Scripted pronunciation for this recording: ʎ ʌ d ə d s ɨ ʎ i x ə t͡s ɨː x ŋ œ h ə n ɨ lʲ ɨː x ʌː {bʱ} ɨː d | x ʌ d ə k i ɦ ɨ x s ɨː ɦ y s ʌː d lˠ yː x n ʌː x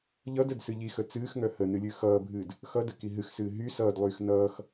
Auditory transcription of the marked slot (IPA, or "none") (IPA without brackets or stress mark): bʱ